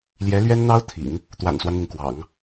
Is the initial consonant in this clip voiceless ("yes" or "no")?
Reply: no